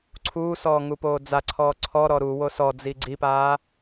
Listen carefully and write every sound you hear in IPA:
ǀʰ uː s ɔː ŋ u p oː d͡z a ǀʰ ɔː ǀʰ ɔ ɾ ɔ ɾ u w o s ɔ d͡z i ɡ͡ǀ i p aː

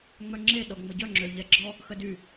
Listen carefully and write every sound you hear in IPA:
ŋ͡m œ ŋ͡ǁ e ɗ ɔ ŋ͡m ə ɟ œ ŋ͡ǁ ø ʎ ɛ ɡ͡ǁ ɔ | x ə d y

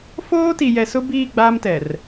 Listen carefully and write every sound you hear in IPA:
f oː˦ t i˨ j ɛ˨ s ʊ˦ b iː˦˨ ɡ͡b aː˦ m t ɛ˨ r

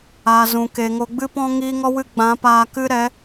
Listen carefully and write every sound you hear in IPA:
a˨ z ũ˨ k e˨ ŋ o˨ ɡ͡b ɨ˧ p ɔ̃˧ ŋ iː˦ ŋ ɔ˦ w ɨ˦ ɡ͡b ã˨˦ p aː˧ k ɨ˦ ɾ ɛ˨˦

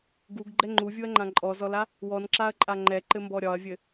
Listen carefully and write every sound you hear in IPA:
ɡ u ɡ ɡ͡ǃ ɛ ŋ͡ǃ u vʲ u ɐ̯ ŋ͡ǃ ã ǃʼ ɔ z ɔ l a | w ɔ n ǁ a ɐ̯ ǃʼ a ŋ͡ǃ ɛ ǃ ɘ m b ɔ ɾʲ ɒ ɐ̯ vʲ ɘ

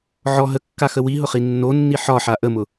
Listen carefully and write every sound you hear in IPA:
ʕ ɔ ɦ ə kː a x ə w i ɦ ʊ χ i nː o nː i ħ ɒ ħ a ʔ ə m ʊ

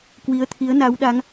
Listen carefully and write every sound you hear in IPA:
k w i˨˦ ə̯ t̪ʰ i˨˦ ə̯ n a˨˦ w ɗ a˨˦ ŋ

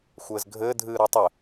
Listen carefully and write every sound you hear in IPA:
xʷ ɘː z ɡʱ ɘː dʱ ɨː ɾ ɔ tˤ ɘ

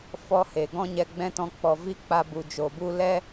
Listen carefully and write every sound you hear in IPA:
f ɔ˦ h e˨ ɡ ɔ̃˦ ɲ ɛ˧ ɡ͡b ɛ̃˦ t ɔ̃˧ k͡p ɔ˨ v i˦ k͡p a˧ b u˨ d͡ʒ o˨ b u˦ l ɛ˦

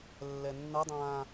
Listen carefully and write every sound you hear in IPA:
lː ɛ nː ʌ dˤ ãː

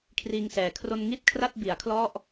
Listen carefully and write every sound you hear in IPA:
kʰ r iː˧ ŋ s ɛː˨˩ kʰ r o˧ n ŋ i˥˩ t̚ kʰ r a˥˩ t̚ b i˩˦ a̯ kʰ l ɔ˥˩ ʔ

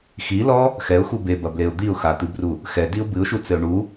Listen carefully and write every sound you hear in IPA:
x i l ɔ | x ɛ ʊ̯ x u b e b ɐ b l e ʊ̯ d̪ i ʊ̯ x a t̪ ɨ b r u | x ɛ d i ʊ̯ b ɨ ʊ̯ ʃ u t͡s ɘ ʊ̯ ɳ u

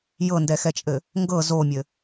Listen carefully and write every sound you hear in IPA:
j ɤ n d ɛ x ɛ t͡ʃʼ ɘ | ŋ ɡ ɤ z o mʲ ɘ

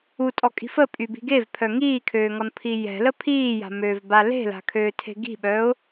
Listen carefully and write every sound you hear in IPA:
u tʼ ɔ kʼ i̤ f ə pʼ y b i̤ ɡ e v pʰ œ ŋ iː kʰ øː ŋ ɔ n pʰ i j ɛ̤ l ə pʰ iː j a̤ m øː v b a l e̤ l a̤ kʰ øː tʰ e̤ ɡ i̤ ɓ œ ʊ̯

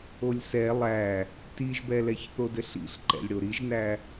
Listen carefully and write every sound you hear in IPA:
o lʲ s ɛ lˠ æ | t i ʒ b ɛ l ɛ ç θ o d ɘ ɬ ḭ ɬ ǃ ɛ̰ lʲ ɽ o ɾ i ʒ n æ

